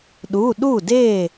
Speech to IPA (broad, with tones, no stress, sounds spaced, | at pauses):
ɗ u˩˧˩ ɗ u˥˩ d e˥˩